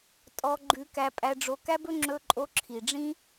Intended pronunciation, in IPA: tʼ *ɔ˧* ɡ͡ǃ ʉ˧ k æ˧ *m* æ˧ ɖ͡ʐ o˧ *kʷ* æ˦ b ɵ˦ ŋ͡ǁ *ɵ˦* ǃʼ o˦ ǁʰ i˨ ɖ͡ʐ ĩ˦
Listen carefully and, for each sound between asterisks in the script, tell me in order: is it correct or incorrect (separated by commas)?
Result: correct, incorrect, incorrect, correct